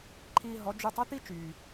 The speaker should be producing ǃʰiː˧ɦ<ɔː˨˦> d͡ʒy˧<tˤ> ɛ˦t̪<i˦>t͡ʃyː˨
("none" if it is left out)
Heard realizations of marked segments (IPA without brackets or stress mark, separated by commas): ɔ˨˦, tˤ, i˦